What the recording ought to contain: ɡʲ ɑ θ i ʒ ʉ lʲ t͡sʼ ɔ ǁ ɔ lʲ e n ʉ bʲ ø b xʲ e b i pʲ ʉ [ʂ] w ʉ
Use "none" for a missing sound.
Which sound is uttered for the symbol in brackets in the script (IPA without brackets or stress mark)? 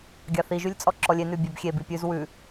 z